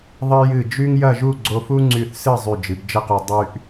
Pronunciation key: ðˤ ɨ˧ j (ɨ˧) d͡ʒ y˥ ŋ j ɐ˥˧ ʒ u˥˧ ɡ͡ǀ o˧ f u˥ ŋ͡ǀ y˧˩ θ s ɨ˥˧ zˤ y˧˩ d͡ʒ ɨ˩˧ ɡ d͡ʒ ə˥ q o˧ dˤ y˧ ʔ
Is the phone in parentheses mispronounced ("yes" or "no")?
yes